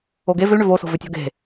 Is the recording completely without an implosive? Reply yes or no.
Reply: yes